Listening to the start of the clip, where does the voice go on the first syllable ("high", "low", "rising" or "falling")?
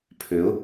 rising